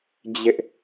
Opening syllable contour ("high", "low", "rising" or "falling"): high